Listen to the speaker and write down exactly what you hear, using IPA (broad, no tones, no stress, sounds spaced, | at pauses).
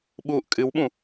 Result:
ɓ uː ʔ kʼ ɨ w ɓ ũ